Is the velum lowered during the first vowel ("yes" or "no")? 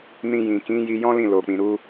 yes